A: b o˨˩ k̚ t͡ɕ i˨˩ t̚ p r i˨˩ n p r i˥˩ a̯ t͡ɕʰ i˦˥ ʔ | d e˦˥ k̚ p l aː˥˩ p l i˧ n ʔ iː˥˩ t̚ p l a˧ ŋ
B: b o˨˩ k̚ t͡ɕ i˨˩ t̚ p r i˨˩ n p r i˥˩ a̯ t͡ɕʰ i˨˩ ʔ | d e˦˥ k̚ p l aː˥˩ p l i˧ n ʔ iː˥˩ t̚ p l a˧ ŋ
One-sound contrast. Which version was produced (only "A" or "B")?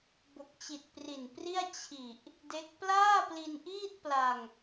B